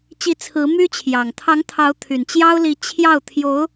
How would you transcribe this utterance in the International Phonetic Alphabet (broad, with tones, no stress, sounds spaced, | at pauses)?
t͡ɕ i˧˥ t͡sʰ ɹ̩˧˥ m y˥ t͡ɕʰ j ɑ˨˩ ŋ t̪ʰ ɑ˧˥ ŋ t̪ʰ ɑ˧˥ ʊ̯ t̪ʰ y˨˩ n t͡ɕ j ɑ˥ ʊ̯ l i˧˥ t͡ɕʰ j ɑ˥˩ ʊ̯ t̪ʰ j o˧˥ ʊ̯